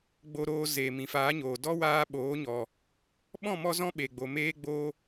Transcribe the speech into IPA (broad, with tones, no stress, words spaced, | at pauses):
ɡ͡bo˧ɾoː˧ zeː˨mĩ˨faː˨˦ɲoː˨ dɔ˦waː˧ɓoː˨˦ ɲɔ˨ | ɓɔ̃˦˨mɔ˧zɔ̃˧ ɓe˨ɡ͡bo˨ meː˦ɡ͡boː˦